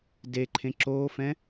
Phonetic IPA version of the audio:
deǃʰẽ ǁoːfɛ̃

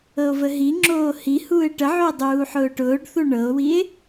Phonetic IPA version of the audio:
ɤo̯vəɦiŋ͡ǁoː hi huːe̯ʈəʕoe̯ dˤuːħʊːʈʊːɖθu ɳɤo̯wie̯

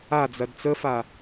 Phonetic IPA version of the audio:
ad͡zɐd t͡səfa

